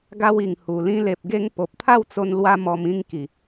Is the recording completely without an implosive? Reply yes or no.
yes